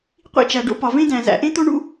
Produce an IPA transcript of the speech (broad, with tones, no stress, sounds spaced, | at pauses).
qʷ ḭ˥ t͡ʃ æ˩ ɖ o̰˥ p ɒ˩ v ẽ˥ d æ̃˩ z æ̰˩ ʔ ẽ˥ t̪ o˥ ɳ ṵ˥